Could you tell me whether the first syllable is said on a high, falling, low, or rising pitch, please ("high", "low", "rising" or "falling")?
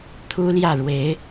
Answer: high